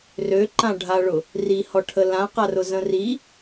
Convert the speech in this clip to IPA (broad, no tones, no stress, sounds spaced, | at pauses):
r ø ǃ ã ɖʱ a ɭ ʊ | r i h ɔ ʈʰ ə l ã q a r ʊ z ə̃ r i